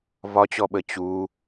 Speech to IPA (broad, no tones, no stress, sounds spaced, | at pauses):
v ɒ t͡ɕ ɔ ɓ ə t͡ɕ u